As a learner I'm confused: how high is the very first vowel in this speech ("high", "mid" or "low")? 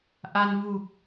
low